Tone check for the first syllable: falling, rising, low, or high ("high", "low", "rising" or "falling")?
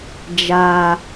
low